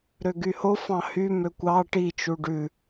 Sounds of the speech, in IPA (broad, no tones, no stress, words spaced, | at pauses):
ɾøɡyho fɑ̃hy møkʷɑ ʈi t͡ʃuɖʉ